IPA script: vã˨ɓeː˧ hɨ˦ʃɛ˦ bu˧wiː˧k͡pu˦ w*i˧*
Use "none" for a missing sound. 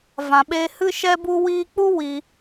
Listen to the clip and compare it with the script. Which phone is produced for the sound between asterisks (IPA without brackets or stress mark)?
i˧